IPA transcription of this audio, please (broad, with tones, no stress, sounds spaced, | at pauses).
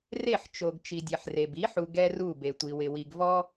r e˦˨ ħ t͡ʃ o˨ ɡ t͡ʃ i˨ dʲ ɛ˨ ħ r e˨ b i˨˦ ħ u˨ ɡ ɛ˦ r u˦˨ b e˨ tʷ i˨ w ɪ˨ w i˨ ɡ v ɔ˦